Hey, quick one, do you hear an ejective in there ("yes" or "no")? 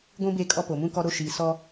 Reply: yes